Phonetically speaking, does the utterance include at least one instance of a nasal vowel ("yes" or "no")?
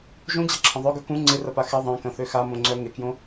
yes